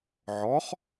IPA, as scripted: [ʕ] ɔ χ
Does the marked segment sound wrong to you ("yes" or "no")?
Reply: no